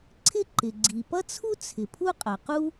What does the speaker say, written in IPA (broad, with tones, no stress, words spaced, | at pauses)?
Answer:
ǀʰɪ˥ǃɪ˩ɡ͡ǀi˩ pʌ˥t͡sʰu˥ t͡sʰɪ˩ pʰu˥qʼʌ˩qu˥